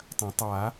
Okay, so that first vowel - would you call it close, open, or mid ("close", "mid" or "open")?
open